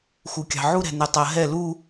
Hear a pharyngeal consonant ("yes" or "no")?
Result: yes